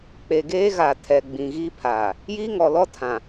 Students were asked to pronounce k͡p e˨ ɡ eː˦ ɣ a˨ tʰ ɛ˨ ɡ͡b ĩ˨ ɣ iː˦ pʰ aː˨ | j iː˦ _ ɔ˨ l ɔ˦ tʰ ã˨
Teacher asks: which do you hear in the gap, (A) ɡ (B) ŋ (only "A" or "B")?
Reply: B